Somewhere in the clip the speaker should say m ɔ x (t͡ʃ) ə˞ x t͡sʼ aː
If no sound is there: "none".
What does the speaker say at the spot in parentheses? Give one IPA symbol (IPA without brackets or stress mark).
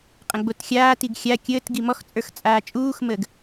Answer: t͡sʼ